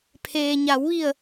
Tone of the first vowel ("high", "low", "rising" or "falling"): low